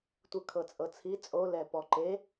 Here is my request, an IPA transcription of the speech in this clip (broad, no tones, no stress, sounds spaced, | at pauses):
tʷ ɯ kʰ ɤ t͡sʼ ɤ t͡sʰ i t͡sʼ o l ɛ p ɔ ǃ e